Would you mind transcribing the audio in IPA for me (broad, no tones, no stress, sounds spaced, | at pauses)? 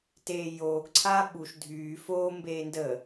t eː j oː ɡ ǀʰ a ɓ u ʃ dʱ yː f oː m b eː n d ə